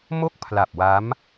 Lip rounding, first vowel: rounded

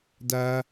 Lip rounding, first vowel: unrounded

